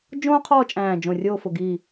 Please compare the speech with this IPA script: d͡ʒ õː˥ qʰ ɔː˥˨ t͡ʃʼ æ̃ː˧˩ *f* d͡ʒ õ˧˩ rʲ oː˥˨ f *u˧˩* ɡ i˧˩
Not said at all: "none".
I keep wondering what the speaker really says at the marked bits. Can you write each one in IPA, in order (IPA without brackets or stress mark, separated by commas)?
none, ʊ˧˩